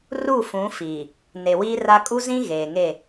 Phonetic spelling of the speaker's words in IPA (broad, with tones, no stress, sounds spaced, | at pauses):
r u˦˨ f ũ˨˦ f iː˨ | n e˨ w iː˦ r a˦ kʼ u˦ z ĩ˦ ɣ eː˨ ŋ e˦˨